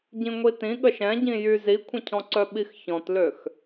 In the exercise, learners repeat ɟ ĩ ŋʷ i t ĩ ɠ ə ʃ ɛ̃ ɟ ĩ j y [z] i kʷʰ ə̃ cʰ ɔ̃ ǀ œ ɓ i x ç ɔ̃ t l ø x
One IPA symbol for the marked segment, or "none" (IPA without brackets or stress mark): z